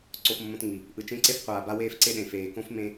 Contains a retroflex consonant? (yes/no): no